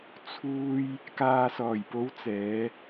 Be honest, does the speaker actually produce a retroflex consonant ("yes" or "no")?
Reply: no